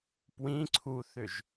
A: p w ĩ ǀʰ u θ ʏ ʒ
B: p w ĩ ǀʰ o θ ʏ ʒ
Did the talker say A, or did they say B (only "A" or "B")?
A